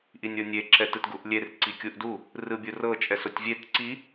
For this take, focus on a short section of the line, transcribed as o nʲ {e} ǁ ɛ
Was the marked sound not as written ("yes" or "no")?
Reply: no